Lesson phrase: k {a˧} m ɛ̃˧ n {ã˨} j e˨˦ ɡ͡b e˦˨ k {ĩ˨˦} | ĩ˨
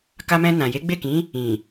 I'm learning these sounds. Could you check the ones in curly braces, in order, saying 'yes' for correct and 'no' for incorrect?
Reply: yes, yes, yes

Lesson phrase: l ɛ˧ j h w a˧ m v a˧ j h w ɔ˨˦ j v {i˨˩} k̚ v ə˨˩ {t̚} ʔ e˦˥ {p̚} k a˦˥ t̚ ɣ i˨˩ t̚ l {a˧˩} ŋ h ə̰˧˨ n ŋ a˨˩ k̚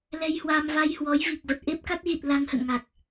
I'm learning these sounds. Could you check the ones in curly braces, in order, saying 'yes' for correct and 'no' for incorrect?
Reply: yes, yes, yes, no

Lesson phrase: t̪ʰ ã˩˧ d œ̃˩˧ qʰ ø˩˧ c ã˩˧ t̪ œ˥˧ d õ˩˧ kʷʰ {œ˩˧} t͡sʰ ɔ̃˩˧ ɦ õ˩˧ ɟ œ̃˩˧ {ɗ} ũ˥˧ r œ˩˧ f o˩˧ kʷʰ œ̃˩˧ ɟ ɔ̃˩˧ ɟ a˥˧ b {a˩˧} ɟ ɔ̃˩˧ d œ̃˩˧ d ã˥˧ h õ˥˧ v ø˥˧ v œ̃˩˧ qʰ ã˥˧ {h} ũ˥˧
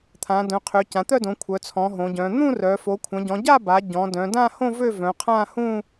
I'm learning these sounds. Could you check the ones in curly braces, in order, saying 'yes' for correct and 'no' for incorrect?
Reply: yes, no, yes, yes

